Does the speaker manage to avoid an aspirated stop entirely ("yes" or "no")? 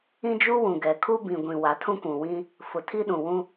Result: no